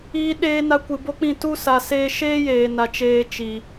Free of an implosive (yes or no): no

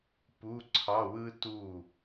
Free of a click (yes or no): no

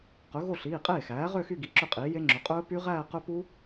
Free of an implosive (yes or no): yes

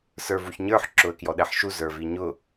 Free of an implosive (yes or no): no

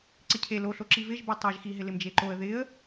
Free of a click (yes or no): no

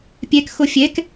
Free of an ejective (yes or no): yes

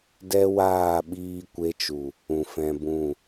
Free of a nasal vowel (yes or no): no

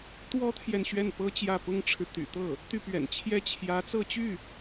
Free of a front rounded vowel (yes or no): no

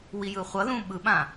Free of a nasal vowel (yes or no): no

